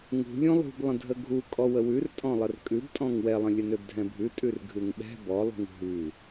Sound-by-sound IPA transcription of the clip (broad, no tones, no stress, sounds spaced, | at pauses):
ŋ ṳ lʲ ũ lˠ ṳ b lˠ ə̃ dʱ ə ɡʱ u kʼ ɔ w ə w ʉ r tʼ ɔ̃ lˠ ə r kʼ ʉ b tʼ ɔ̃ ŋ w ɛ lˠ ə̃ lʲ ə n ø b dʱ ɛ̃ bʱ ʉ tʼ ʉ r ɡʱ ʉ ŋ ɓ ɛ̤ b ɔ lˠ ṳ ŋ ɦ ʉ